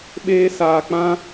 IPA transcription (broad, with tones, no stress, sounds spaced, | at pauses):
ɓ eː˦ s aː˧ k͡p ã˦